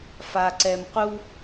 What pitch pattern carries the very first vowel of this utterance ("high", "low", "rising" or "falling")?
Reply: low